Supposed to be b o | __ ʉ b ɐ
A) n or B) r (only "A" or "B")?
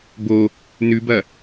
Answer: A